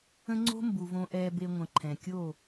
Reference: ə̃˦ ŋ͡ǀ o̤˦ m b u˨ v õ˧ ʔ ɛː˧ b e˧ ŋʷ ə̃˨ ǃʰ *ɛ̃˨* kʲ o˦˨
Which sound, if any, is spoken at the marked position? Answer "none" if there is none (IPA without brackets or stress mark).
ɛ̃˨